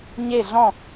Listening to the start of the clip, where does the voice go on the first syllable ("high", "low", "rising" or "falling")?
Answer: falling